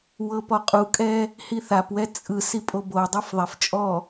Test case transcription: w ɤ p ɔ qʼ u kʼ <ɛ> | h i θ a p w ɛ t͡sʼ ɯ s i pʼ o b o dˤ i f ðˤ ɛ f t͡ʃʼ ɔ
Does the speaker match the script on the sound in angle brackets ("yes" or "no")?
yes